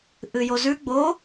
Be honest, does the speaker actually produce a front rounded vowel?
no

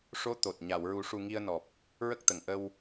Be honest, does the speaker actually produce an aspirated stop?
no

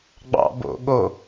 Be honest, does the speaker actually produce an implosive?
yes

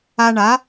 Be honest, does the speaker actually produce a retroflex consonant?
yes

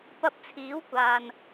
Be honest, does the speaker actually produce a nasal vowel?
no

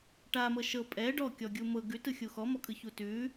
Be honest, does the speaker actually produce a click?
no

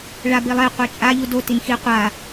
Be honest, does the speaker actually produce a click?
no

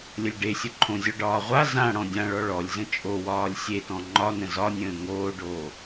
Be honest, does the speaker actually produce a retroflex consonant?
yes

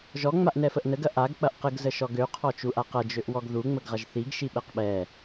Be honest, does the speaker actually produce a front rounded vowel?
yes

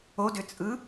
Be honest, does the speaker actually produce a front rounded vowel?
yes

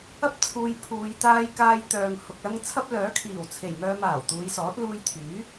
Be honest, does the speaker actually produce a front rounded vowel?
yes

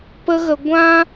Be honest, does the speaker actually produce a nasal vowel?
yes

